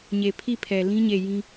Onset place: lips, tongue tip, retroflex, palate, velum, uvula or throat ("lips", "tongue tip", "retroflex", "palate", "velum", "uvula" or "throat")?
palate